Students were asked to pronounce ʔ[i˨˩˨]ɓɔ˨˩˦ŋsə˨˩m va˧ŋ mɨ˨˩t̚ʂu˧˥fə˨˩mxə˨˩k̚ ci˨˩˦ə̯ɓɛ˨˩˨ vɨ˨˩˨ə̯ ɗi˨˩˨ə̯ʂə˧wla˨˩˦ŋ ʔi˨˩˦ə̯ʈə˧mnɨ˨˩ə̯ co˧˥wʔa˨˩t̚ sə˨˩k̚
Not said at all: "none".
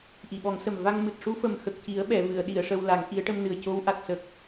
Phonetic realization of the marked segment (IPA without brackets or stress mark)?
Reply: i˨˩˨